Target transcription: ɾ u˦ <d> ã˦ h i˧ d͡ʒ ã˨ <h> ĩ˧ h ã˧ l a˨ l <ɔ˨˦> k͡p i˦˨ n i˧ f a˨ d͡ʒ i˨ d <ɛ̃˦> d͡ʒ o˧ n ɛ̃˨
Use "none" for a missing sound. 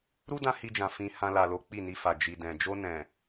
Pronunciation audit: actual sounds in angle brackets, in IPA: d, f, o˨˦, ɛ̃˨

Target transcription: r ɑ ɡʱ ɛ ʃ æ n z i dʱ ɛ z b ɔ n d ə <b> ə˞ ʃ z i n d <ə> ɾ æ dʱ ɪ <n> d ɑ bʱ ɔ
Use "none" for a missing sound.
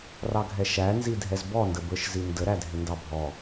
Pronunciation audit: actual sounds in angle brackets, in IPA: b, ə, n

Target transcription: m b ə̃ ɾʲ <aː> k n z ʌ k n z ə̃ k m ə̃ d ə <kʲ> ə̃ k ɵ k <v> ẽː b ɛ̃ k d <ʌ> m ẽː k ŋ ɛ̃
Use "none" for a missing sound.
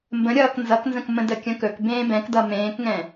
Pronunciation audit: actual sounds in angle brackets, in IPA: ʌː, kʲ, b, ʌ

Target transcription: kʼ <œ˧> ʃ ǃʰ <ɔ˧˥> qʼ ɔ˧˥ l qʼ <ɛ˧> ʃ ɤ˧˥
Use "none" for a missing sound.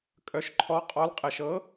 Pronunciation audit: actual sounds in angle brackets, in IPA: œ˧, ɔ˧˥, ɛ˧

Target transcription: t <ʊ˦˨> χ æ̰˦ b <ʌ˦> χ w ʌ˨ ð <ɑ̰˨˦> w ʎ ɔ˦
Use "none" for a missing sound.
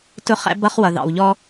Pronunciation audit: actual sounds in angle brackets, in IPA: ʊ˦˨, ʌ˦, ɑ̰˨

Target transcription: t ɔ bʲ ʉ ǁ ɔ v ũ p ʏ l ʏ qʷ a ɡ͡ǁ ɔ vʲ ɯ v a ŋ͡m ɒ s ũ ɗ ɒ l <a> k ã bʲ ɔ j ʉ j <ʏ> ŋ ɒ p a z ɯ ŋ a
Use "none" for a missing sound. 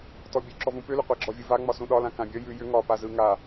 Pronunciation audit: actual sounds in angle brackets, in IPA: ã, ʏ

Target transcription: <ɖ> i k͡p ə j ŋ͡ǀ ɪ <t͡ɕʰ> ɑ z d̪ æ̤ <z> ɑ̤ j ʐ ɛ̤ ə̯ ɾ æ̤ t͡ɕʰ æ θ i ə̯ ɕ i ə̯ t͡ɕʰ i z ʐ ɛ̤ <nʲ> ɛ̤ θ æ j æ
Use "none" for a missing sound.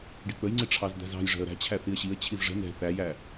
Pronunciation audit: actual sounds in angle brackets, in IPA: ɖ, ʈ͡ʂʰ, z, n

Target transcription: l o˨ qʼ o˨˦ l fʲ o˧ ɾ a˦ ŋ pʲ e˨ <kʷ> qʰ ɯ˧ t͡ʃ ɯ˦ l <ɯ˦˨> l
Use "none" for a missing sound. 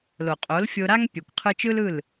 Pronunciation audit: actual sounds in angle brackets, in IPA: kʷ, ɯ˦˨

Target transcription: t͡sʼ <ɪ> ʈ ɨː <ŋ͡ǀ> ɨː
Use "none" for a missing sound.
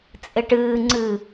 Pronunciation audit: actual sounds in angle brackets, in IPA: ɪ, ŋ͡ǀ

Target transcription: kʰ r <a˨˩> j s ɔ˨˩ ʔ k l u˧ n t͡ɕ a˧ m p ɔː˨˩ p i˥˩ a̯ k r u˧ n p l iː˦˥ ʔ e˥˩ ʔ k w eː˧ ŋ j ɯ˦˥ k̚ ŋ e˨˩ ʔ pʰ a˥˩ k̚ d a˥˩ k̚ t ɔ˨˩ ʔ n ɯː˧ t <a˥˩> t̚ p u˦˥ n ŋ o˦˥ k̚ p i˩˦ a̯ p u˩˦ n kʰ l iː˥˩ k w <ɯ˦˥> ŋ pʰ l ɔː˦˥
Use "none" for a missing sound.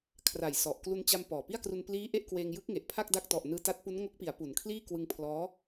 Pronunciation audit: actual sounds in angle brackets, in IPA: a˨˩, a˦˥, ɯ˧

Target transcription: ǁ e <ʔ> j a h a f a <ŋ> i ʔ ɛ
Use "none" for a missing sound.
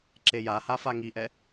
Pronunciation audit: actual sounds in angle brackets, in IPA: none, ŋ

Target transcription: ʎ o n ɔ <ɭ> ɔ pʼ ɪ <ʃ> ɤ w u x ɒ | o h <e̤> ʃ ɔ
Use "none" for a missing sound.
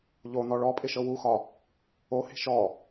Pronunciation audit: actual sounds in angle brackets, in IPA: ɭ, ʃ, e̤

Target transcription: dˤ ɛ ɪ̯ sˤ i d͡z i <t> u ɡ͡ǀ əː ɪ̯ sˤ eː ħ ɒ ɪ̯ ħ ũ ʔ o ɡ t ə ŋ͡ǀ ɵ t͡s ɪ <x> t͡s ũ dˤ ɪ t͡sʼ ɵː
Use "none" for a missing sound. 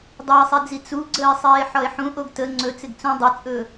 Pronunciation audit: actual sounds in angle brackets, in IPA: t͡s, ɡ

